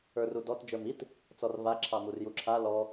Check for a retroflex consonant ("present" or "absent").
absent